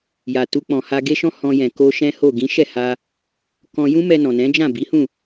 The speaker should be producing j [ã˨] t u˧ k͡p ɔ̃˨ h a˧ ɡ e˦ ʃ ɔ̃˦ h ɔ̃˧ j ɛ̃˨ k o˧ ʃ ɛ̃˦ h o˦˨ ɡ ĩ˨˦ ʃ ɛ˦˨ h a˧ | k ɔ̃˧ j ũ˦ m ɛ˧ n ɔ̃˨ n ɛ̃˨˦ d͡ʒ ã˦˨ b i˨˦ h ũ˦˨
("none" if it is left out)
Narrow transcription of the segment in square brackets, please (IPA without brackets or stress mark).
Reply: a˨